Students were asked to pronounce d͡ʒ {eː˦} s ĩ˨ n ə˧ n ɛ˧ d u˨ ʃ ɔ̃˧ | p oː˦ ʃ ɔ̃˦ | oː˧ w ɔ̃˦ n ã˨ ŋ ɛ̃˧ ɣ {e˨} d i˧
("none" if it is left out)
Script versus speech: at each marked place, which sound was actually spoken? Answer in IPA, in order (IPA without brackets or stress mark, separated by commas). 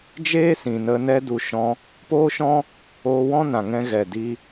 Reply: eː˦, ɛ˨